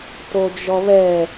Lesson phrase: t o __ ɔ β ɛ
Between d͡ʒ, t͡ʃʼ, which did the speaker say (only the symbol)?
d͡ʒ